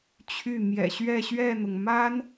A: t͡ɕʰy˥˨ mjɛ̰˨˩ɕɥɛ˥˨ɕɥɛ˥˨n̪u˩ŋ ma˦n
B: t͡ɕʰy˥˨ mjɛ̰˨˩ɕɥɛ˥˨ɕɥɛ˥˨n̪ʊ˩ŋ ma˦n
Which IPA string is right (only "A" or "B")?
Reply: B